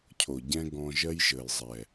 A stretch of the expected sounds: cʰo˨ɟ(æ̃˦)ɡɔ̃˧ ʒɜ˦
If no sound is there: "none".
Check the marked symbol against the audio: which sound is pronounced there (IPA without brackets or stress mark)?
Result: ɛ̃˦